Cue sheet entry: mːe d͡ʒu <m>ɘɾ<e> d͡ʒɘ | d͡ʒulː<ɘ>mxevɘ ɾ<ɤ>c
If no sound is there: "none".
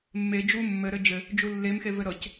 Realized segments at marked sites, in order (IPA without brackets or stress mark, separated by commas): mː, ɘ, e, ɤ